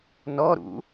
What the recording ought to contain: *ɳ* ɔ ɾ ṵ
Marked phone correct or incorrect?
incorrect